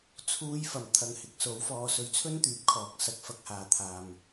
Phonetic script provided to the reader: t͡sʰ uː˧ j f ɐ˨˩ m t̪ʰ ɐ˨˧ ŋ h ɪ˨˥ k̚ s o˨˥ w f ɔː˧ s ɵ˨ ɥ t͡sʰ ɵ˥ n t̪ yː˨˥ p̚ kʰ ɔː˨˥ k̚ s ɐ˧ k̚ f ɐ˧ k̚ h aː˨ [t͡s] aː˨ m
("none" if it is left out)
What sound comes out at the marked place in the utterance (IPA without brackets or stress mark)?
t̪ʰ